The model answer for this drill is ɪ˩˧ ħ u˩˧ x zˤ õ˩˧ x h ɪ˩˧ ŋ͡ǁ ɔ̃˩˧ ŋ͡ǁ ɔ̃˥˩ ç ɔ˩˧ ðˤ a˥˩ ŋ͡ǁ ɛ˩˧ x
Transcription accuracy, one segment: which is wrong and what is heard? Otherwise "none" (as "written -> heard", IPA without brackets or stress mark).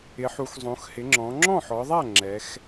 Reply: ç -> ħ